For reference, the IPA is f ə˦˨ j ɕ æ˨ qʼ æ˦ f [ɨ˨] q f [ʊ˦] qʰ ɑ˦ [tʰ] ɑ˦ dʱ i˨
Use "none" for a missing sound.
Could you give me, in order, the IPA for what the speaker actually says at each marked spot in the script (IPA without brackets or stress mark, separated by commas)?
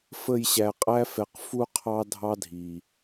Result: ɛ˨, u˦, dʱ